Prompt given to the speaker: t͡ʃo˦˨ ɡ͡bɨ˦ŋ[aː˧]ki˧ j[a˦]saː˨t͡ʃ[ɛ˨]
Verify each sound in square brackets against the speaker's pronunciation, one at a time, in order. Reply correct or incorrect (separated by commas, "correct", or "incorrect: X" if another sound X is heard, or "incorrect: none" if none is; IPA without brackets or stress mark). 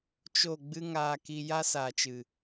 correct, correct, incorrect: ɨ˨